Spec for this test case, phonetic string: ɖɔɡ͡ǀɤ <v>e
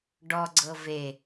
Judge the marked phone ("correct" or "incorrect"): correct